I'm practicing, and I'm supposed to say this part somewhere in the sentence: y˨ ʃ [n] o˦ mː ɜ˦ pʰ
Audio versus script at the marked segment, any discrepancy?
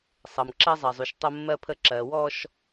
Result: yes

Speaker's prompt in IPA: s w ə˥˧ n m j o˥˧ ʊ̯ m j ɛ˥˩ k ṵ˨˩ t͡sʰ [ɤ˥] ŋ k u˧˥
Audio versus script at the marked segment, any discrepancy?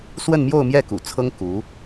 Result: no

